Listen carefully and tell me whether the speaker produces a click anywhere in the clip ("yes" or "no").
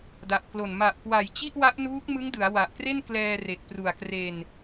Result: no